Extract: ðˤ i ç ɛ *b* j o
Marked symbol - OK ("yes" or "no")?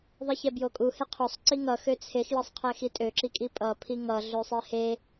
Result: yes